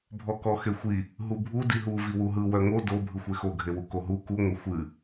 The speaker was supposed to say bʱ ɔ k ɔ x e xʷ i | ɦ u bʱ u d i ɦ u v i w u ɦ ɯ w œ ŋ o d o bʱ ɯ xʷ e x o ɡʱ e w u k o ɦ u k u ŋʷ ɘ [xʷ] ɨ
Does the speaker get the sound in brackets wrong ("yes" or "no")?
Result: no